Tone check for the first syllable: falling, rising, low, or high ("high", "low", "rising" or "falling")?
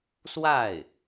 falling